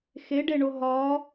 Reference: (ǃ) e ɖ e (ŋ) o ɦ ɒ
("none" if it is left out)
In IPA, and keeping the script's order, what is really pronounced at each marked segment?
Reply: x, ɳ

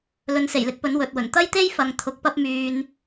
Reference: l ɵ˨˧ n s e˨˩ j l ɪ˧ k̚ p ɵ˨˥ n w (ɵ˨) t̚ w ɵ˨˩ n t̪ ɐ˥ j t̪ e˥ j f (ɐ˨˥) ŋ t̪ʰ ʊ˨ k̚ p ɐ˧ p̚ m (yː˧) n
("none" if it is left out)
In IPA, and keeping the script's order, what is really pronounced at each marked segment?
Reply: ɵ˨, ɐ˨˧, yː˨

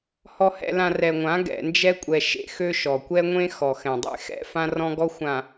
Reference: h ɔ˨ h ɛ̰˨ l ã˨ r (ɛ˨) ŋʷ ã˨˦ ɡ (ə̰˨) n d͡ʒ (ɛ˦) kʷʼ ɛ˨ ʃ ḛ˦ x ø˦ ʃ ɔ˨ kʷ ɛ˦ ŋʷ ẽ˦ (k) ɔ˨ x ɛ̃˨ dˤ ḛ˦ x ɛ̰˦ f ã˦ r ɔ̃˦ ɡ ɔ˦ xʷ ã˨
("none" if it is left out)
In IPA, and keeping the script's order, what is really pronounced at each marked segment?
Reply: ɛ˨, ɛ̰˨, ɛ˦, x

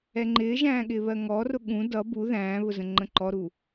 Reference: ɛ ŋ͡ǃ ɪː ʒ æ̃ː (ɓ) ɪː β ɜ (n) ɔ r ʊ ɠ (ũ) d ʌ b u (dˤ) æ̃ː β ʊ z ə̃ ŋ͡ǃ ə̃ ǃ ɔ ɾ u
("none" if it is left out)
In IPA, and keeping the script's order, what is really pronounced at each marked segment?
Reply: ɠ, ŋ, ũ, ð

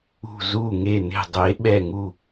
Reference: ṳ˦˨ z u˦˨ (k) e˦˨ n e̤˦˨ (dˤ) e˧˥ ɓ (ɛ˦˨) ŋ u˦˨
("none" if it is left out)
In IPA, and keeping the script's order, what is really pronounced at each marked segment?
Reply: ŋ, dˤ, ɛ˦˨

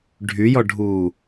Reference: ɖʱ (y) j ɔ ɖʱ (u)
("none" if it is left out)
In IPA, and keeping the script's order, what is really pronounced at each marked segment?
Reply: y, uː

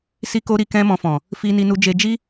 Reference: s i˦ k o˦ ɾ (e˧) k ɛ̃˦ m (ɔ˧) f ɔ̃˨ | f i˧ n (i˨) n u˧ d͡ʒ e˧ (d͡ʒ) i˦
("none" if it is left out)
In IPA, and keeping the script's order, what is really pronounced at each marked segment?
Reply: i˧, ɔ̃˧, i˧, d͡ʒ

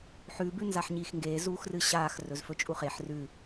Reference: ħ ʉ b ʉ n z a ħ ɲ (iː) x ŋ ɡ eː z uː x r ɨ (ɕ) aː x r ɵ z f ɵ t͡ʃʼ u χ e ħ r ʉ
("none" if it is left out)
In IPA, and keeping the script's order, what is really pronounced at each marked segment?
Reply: iː, ɕ

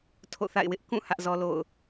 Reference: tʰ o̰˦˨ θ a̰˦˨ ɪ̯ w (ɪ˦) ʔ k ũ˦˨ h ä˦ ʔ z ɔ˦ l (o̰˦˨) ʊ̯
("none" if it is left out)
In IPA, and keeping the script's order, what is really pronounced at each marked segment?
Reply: ɪ˦, o̰˦˨

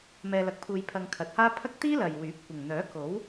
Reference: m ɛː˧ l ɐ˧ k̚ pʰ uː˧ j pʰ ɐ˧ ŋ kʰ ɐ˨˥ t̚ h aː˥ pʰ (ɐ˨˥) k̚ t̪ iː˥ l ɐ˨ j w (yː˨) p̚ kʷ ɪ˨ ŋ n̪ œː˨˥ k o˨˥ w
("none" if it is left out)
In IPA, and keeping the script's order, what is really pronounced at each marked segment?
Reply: ɐ˥, yː˨˥

